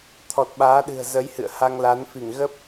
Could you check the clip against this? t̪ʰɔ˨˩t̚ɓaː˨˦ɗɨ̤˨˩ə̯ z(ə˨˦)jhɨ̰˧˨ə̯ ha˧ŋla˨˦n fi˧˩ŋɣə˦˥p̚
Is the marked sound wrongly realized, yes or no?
no